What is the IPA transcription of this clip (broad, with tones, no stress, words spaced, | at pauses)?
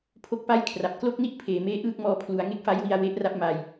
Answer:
pʰo˥˩k̚pa˥˩j kʰra˨˩p̚ klo˥˩k̚ni˥˩ʔ pʰeː˩˦meː˥˩ ʔɯː˥˩k̚mɔː˧pʰlu˩˦a̯ ŋe˦˥k̚fa˦˥jwi˧a̯ we˦˥ʔra˦˥p̚ ma˧j